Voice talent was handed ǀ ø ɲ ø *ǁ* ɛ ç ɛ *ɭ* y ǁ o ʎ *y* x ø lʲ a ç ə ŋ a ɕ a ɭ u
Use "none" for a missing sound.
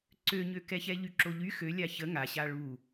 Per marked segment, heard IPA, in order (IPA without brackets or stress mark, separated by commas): k, ʎ, y